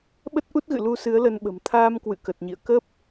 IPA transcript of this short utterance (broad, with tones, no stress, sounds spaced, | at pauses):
ɓ ə˦˥ t̚ ʔ u˦˥ t̚ ɣ ɨ̰˧˨ l u˧ s ɨ˨˦ ə̯ l ə˧ n ɓ ə̤˨˩ m t̪ʰ aː˧ m k w ɨ̰˧˨ k ə˨˩ t̚ ɲ ḭ˧˨ ə̯ k ə˦˥ p̚